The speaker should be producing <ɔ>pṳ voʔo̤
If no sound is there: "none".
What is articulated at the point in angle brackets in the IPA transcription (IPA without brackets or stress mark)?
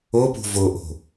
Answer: o